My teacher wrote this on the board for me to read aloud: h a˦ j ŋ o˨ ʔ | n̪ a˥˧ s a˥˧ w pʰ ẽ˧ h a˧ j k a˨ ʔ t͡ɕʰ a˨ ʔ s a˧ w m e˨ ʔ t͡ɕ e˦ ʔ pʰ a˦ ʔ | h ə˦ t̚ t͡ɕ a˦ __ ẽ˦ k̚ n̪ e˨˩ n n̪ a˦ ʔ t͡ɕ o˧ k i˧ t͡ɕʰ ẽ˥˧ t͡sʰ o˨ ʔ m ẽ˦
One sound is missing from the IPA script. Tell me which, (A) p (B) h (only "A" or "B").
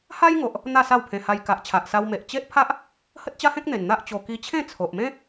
B